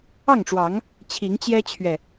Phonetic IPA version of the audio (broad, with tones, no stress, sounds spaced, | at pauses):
ɑ˥˨ ŋ ʈ͡ʂ w ɑ˨˦ ŋ | t͡ɕʰ i˨˦ ŋ t͡ɕ j ɛ˦ t͡ɕʰ ɥ ɛ˨